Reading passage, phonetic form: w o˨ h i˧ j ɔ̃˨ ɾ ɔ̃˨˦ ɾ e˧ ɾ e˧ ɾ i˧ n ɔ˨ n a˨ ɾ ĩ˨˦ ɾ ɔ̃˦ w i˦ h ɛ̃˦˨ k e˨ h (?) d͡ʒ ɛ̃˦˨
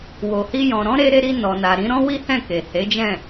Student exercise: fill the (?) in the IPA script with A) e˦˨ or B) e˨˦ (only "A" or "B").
B